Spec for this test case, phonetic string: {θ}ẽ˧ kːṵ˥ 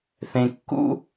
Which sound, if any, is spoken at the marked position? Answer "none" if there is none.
θ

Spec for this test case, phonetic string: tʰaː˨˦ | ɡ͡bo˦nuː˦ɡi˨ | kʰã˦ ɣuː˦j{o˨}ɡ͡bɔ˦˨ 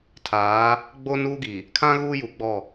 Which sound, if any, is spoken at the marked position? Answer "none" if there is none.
u˨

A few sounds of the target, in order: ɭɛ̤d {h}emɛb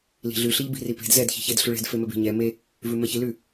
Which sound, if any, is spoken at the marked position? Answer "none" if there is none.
f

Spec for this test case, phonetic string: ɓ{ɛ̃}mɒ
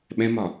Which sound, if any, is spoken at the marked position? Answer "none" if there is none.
ɛ̃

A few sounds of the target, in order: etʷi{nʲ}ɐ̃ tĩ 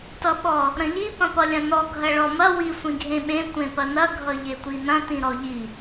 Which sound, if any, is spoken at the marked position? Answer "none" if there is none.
n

